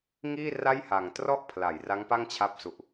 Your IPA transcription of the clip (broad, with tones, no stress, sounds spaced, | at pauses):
ŋ iː˥˩ r a˥˩ j h a˨˩ ŋ t r ɔ˥˩ ʔ pʰ l a˩˦ j r a˦˥ ŋ p a˥˩ ŋ t͡ɕʰ a˦˥ p̚ s u˨˩ ʔ